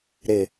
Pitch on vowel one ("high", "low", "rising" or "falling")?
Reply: low